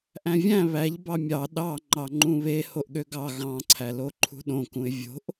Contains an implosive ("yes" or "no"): yes